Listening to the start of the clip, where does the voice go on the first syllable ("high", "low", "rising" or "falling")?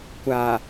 low